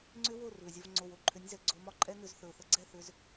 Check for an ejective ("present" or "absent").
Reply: present